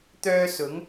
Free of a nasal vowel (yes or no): yes